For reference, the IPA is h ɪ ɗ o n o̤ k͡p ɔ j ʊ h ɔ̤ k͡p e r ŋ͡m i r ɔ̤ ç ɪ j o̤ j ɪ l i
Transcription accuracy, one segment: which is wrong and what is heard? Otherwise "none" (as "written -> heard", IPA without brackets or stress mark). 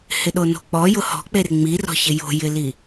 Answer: none